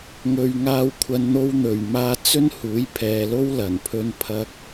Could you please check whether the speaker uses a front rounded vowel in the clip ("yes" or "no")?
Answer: no